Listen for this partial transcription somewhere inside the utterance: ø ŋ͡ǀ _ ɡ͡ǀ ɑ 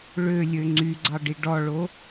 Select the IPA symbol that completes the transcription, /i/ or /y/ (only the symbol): y